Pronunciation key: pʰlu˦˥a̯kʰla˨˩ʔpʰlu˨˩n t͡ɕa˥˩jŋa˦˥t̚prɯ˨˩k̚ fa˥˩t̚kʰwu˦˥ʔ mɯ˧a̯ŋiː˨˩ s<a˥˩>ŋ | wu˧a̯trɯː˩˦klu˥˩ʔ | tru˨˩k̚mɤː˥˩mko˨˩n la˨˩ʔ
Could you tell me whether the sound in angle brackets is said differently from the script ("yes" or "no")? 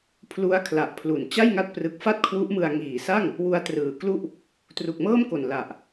no